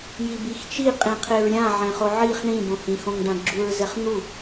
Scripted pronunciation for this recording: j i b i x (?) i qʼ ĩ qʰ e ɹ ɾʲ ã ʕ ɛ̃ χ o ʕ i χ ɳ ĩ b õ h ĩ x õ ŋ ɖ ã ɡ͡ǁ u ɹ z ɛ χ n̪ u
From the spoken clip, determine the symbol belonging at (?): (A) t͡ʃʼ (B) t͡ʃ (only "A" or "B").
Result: B